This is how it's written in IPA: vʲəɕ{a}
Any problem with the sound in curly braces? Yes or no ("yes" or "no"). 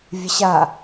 no